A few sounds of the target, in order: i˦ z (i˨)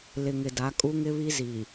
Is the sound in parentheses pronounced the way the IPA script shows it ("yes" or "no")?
yes